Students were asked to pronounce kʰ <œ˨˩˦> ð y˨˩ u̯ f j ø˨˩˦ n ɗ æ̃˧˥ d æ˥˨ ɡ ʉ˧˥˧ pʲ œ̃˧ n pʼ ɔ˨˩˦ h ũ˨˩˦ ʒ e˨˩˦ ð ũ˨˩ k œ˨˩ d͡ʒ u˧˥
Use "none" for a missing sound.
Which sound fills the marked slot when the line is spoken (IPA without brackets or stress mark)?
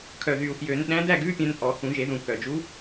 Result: œ˨˩